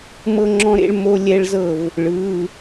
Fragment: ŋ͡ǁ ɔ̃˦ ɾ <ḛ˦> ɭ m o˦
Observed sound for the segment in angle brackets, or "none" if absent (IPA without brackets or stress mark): ḛ˦